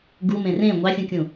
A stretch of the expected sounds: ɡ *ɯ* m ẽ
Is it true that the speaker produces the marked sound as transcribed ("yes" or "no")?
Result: no